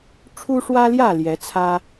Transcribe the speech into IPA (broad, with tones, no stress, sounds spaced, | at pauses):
ʈ͡ʂʰ u˦ ʂ w ä˦ l j ä˥˨ l j ɛ˨˦ t͡sʰ ä˦